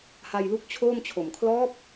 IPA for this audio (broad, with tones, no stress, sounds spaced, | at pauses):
h a˧ j l u˦˥ k̚ t͡ɕʰ oː˥˩ m t͡ɕʰ o˨˩ m kʰ l ɔː˦˥ p̚